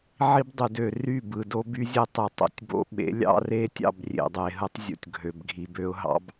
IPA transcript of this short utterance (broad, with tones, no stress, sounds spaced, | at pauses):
ʕ i˦ b dˤ y˨ d ø˨ r y˦˨ b ɯ˨ d o˦ b y˦ zʲ e˦ tˤ ɯ˨ tˤ o̰˨ tʲ b o̰˦ ɓ ḛ˨˦ lʲ ɑ̰˦ r e˦ tʲ ɑ̰˦˨ b rʲ ḛ˨ dˤ e˨ ɦ ɯ˦ tˤ zʲ o̰˨ tʲ ɡʱ ø˨ b ɡʱ i˨ b ø˦ ʊ̯ ɦ ɑ̰˦ b